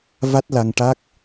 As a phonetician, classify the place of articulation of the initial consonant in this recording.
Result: labial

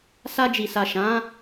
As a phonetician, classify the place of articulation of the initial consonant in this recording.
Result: alveolar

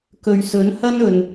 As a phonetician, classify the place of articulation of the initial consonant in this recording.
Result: velar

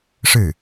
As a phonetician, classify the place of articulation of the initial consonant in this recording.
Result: retroflex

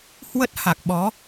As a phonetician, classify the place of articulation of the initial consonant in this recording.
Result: glottal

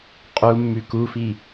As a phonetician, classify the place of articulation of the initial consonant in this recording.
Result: uvular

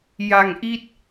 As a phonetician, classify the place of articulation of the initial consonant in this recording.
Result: palatal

